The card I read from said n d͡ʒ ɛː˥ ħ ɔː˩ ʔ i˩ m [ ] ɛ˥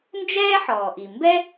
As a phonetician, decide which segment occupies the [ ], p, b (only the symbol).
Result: b